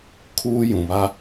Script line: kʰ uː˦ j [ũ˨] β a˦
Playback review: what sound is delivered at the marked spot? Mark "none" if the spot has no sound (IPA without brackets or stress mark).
ũ˨